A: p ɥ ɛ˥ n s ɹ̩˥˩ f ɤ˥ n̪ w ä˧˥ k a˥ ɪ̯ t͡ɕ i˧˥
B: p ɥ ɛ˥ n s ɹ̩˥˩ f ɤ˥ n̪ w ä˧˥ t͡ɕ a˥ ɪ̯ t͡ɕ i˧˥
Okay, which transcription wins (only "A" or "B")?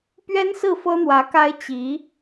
A